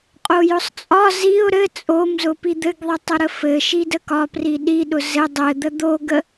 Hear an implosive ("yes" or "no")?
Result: yes